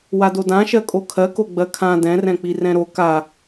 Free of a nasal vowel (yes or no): no